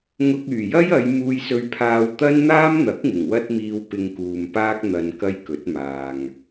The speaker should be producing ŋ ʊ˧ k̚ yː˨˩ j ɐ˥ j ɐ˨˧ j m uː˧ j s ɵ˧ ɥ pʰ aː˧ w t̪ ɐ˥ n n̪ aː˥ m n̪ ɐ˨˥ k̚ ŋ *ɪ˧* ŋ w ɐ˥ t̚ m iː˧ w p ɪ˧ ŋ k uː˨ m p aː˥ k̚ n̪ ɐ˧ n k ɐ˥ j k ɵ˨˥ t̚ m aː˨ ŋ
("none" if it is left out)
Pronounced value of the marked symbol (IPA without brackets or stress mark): ɪ˨˩